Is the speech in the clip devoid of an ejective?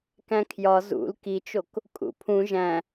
no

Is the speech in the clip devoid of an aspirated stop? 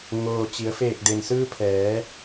no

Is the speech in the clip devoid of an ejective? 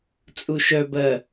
no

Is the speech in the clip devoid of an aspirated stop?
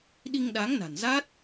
yes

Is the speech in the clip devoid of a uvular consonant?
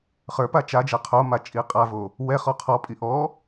no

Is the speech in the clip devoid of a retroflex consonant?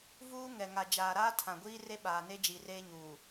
yes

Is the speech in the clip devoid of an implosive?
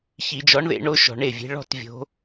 yes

